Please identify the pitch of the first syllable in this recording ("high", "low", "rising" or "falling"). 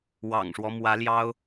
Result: low